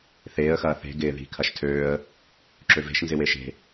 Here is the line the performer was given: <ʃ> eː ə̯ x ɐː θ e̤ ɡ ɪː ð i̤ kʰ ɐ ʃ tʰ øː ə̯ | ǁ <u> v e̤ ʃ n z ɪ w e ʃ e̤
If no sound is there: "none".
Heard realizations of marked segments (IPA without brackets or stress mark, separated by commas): θ, ø